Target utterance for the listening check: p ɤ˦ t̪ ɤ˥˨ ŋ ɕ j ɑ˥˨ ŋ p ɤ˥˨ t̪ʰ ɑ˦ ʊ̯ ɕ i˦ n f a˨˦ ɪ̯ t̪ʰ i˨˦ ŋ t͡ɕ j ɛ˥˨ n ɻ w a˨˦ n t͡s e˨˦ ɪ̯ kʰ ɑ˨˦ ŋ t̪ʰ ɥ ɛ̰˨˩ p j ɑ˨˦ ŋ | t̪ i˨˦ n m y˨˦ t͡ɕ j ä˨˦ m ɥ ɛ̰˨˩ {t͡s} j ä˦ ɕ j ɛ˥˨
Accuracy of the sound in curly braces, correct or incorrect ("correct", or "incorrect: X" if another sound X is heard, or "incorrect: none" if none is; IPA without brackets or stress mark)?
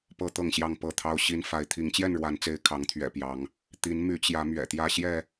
incorrect: t̪